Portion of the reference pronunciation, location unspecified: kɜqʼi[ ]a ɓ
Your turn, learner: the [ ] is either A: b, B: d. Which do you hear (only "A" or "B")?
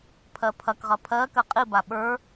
A